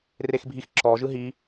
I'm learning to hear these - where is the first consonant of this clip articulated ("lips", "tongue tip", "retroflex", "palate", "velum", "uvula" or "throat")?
tongue tip